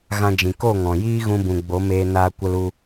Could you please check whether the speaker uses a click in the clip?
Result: no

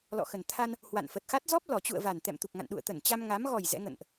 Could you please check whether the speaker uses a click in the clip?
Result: no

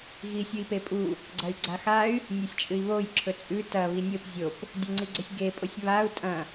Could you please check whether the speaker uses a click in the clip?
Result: yes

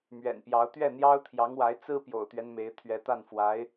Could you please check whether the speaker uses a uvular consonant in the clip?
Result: no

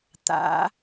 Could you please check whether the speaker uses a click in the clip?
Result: no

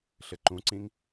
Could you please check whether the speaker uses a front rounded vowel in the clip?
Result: no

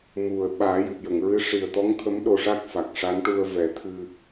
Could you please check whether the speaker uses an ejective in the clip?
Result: no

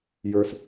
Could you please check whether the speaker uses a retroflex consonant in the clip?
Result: no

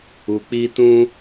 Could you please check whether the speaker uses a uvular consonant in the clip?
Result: no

